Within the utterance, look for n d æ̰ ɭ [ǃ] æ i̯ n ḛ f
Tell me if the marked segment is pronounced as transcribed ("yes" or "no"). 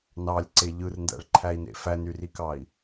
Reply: no